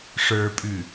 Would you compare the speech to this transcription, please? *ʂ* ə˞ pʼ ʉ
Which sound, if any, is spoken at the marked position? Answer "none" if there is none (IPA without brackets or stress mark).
ʂ